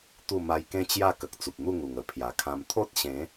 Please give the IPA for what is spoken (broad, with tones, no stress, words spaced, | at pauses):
t̪u˥˧ ma˧jkẽ˦ t͡ɕja˥˧kə˨k̚ t͡su˨p̚n̪u˥˧ŋu˨˩ŋ ə˨˩pʰja˨˩kʰã˧m t̪ʰo˦t̚ɕẽ˨˦